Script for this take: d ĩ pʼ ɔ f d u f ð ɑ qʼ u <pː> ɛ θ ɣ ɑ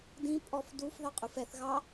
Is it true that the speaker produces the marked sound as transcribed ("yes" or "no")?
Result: no